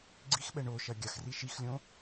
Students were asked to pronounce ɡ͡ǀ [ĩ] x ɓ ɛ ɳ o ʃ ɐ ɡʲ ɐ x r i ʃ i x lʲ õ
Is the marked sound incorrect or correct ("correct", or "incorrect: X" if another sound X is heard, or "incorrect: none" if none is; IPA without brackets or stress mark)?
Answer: incorrect: i